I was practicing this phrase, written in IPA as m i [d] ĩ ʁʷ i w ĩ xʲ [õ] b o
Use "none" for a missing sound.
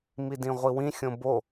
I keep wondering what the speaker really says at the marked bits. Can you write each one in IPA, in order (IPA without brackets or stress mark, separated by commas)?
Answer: d, õ